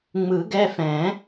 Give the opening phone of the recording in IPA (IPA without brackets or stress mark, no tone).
ŋ͡m